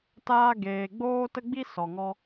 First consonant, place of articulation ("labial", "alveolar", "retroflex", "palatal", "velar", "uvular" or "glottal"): alveolar